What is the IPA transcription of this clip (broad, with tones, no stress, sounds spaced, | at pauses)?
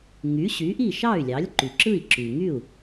ŋ y˩˥ ɕ y˩˥ ʔ i˥˩ ʃ ɑ˥˩ y̯ lʲ ɑ˩˥ lʲ ǃ y˩ ǁ ɯ˥˩ i̯ ǁ y˩ ŋ y˥˩ u̯